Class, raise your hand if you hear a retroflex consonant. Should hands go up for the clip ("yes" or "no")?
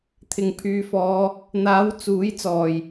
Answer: no